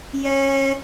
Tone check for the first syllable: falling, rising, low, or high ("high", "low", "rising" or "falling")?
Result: high